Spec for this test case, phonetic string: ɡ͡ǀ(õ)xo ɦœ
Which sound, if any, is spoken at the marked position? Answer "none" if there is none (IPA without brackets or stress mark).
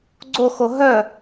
o